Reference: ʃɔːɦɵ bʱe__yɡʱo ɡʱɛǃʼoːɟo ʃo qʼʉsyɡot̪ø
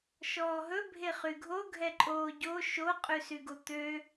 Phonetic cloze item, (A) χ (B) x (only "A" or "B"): A